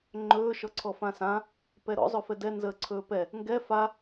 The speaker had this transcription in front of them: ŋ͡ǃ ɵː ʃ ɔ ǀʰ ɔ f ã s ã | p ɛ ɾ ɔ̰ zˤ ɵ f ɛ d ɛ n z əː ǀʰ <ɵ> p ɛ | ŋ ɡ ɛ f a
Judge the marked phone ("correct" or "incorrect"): incorrect